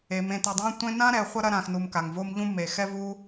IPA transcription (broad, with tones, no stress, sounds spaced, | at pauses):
e˩ m ẽ˨ t ɛ˨ dˤ ã˥ tʷ ẽ˥ n ã˥ ɾ ɛ˨ χʷ ɐ˥ ɾ ɐ˦ ɾ ã˨ x n u˨ m k a˩ ŋ v o˦ m ʎ ũ˥ m e˩ x ɛ˥ v u˥